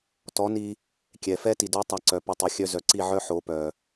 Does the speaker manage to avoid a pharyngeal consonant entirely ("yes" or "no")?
no